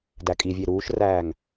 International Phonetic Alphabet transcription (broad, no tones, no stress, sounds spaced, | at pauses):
d æ kʼ i vʲ e ɾ uː ʃ r æː ŋ